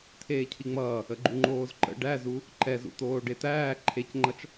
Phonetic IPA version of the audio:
t̪ʰ eː cʰ i ŋ͡m ʌː | ə ɡ͡ǃ u ŋ͡ǃ oː z ǃ ə̰ ɖ æ z u | ǃ ɛ z ṵ t̪ oː ɖ e t̪ æː ǃʰ e c ŋ͡ǃ ʌ t͡ʃ

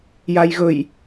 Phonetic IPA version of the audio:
j a j ɣ ɵ j

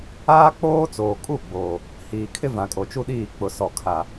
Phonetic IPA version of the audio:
aː˦ k͡p oː˦ t͡s oː˨ kʼ u˦˨ ɡ͡b oː˨ | h iː˨ kʰ ɪ˦ v ã˨ kʼ o˨ t͡ʃ u˦ ɗ iː˦˨ k͡p ʊ˨ s ɔ˨ kʰ a˨

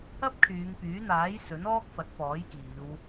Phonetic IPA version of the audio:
ɐ˥ p̚ kʰ yː˨˧ ŋ p yː˨˥ n̪ aː˨˥ j s ɵ˨˥ n ɔː˥ k̚ f ɐ˨˥ t̚ p ɔː˨˥ j k iː˨˧ w

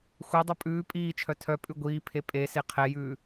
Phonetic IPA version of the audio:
xʷ ɛ dˤ œ pʼ ʉː pʼ iː t͡ʃʰ œ tʰ œ pʼ ʉ ɡʷ iː pʰ e pʼ e s e qʰ ɛ j ʉː

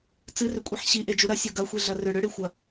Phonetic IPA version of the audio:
t͡s ɨ r ʏ kʷʼ i ħ ɕ i ʔ e d͡ʒ u ɾ ɐ sʲ ɤ ɡ ɐ xʷ i ɮ ɐ r ʏ ɽ ʏ ɽ ɨ xʷ ɐ

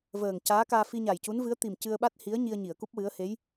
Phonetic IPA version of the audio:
v əː˨˩ ŋ c aː˧˥ k aː˧ f i˧ ɲ a˨˩ j c u˧˥ n v ɨ˧˥ ə̯ t̪ i˨˩ m c ɨ˧ ə̯ ɓ a˦˥ t̚ h i˧˥ ə̯ ɲ i˧ ə̯ ɲ i˨˩˨ ə̯ k u˦˥ p̚ w ɨ˧˥ ə̯ h e˧˥ j

